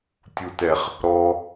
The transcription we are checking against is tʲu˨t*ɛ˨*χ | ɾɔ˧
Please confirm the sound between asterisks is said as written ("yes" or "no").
yes